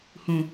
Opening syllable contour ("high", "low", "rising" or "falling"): low